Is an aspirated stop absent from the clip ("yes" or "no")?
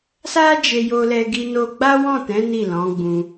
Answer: yes